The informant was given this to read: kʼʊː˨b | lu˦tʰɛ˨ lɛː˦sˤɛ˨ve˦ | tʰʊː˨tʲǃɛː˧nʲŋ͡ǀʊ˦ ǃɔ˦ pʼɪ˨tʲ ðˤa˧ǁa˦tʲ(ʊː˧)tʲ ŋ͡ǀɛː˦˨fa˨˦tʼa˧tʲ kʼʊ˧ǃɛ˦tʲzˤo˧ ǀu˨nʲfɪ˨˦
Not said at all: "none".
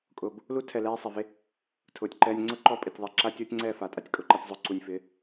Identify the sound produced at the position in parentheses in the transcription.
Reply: ʊː˦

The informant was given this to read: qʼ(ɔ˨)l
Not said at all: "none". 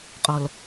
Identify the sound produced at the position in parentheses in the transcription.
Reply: ɔ˨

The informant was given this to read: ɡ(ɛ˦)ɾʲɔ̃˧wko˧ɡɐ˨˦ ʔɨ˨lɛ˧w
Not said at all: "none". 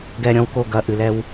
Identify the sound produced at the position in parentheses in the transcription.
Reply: ɛ˧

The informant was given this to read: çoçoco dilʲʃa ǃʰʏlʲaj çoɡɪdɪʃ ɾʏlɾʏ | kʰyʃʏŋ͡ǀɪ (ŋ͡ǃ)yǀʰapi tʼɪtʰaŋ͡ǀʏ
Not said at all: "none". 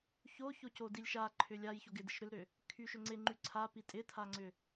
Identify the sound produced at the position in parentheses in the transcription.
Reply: ŋ͡ǃ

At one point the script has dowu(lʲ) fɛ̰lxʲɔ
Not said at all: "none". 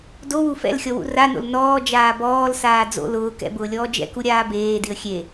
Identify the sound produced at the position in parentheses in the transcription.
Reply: none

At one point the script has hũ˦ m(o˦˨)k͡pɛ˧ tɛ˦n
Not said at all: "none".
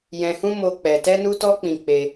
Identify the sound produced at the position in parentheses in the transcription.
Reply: o˦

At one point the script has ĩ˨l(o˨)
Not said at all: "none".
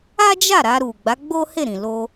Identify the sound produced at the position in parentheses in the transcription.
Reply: o˧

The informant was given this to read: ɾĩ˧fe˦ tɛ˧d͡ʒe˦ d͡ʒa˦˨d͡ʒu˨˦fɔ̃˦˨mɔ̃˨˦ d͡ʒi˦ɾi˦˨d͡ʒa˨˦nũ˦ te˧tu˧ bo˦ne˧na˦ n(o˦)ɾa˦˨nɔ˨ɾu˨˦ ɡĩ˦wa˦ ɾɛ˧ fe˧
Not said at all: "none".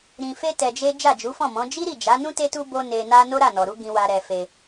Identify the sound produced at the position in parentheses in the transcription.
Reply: o˦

